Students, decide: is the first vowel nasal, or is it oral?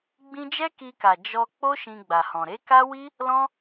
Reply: nasal